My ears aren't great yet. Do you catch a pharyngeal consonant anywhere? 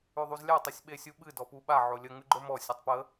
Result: yes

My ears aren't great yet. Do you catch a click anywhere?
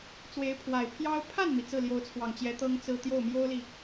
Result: no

